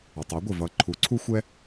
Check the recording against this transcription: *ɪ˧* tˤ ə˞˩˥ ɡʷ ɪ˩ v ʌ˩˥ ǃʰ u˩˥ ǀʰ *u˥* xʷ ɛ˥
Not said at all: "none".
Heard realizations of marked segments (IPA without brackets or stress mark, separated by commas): ɪ˩, u˥